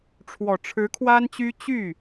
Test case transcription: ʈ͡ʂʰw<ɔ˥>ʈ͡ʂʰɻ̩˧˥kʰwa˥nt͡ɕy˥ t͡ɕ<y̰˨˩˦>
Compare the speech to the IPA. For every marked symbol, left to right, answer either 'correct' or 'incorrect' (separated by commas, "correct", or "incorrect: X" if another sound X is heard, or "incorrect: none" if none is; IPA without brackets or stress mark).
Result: incorrect: ɔ˨˩, incorrect: y˥˩